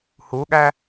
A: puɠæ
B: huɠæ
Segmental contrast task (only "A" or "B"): B